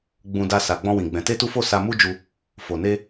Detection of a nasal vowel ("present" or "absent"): present